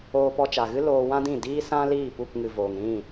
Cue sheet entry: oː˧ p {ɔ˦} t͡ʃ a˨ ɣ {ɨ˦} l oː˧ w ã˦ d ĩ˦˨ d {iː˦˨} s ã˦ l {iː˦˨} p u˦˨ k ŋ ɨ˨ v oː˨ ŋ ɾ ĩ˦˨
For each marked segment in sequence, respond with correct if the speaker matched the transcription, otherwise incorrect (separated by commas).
incorrect, correct, incorrect, correct